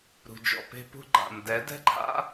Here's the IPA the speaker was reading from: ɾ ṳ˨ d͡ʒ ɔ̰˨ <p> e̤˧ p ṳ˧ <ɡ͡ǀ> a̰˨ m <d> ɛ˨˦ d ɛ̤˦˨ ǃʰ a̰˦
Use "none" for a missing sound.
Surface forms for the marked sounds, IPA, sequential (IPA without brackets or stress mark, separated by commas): p, ɡ͡ǃ, d